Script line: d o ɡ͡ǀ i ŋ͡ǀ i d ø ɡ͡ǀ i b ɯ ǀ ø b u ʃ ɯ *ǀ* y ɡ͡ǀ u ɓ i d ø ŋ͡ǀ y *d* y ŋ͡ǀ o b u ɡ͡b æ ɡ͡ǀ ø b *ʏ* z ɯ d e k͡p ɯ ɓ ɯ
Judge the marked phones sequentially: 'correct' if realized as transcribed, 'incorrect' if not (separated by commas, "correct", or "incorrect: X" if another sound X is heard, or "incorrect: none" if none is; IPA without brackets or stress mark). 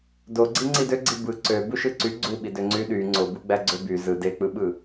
correct, incorrect: ɗ, incorrect: y